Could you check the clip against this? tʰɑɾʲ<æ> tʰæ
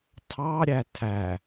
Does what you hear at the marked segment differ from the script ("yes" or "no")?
no